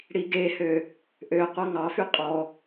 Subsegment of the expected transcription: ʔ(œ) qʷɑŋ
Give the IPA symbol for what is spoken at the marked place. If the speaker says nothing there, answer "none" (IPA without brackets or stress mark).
ø